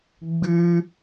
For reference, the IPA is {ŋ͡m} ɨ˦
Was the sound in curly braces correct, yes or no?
no